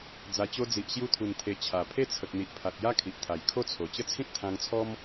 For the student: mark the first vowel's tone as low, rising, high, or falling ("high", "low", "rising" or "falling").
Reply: low